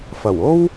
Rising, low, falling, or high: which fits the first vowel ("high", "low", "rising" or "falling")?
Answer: low